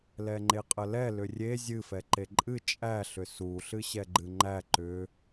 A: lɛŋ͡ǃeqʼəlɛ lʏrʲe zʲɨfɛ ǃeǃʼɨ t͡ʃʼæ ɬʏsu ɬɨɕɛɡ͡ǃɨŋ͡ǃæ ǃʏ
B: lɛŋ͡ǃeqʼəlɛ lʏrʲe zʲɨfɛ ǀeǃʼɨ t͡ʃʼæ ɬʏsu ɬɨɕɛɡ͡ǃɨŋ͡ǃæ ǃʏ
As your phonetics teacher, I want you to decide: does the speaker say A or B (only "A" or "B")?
A